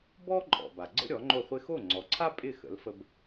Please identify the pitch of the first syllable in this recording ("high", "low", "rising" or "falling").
high